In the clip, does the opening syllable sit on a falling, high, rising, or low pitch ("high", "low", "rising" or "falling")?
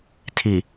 low